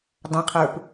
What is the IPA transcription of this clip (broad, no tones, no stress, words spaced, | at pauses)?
dˤãqʰə˞p